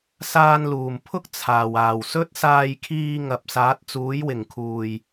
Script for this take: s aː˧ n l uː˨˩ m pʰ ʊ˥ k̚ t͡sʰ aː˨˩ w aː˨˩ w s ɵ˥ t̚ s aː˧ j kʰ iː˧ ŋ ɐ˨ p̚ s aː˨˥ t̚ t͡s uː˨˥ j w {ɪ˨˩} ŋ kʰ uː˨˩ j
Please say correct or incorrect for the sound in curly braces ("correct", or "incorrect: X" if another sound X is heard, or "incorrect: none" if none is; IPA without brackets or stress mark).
correct